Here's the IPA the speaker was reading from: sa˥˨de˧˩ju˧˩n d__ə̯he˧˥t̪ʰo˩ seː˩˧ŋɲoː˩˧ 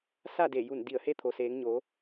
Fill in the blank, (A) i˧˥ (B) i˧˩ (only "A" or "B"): B